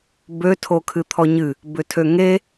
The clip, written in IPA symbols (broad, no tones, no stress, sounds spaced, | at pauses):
b ø tʰ o kʰ ɨ t̪ʰ ɔ ɲ ɨ | b ʏ tʰ ø ŋ e